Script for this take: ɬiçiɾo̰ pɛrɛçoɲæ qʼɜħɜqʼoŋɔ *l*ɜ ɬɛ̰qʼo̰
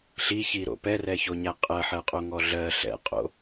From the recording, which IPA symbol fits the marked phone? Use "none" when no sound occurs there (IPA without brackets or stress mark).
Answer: ɮ